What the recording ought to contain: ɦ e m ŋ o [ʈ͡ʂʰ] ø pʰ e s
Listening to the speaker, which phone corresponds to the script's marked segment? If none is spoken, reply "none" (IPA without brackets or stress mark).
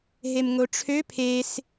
ʈ͡ʂʰ